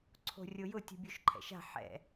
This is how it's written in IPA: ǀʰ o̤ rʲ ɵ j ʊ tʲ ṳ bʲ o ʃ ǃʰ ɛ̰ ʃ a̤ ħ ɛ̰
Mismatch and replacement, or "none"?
ɵ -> o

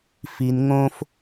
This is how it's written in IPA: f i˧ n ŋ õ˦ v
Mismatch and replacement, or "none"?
v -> f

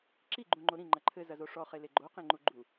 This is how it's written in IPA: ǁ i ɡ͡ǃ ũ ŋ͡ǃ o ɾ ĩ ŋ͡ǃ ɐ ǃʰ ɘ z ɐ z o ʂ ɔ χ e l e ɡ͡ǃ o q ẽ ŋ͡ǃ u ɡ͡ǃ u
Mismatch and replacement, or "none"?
none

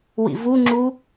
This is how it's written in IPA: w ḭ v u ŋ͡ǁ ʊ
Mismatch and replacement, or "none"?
ʊ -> u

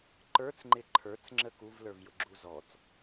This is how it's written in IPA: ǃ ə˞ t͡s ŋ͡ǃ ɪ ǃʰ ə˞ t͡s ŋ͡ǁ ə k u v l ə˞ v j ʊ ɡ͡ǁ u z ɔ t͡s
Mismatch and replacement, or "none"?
none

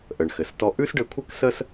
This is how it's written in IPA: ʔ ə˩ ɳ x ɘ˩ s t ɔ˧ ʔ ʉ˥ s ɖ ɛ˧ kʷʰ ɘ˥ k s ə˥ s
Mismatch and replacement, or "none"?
ɛ˧ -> ɘ˧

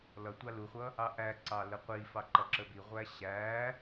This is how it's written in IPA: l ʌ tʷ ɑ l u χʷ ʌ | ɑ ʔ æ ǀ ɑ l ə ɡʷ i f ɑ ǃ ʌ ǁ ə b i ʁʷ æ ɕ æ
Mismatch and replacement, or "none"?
ɡʷ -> qʷ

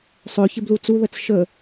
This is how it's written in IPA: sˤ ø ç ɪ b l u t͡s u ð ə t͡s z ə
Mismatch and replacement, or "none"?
z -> ʃ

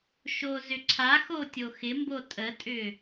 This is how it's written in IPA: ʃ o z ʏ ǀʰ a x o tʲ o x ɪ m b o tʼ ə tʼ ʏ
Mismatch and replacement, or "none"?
none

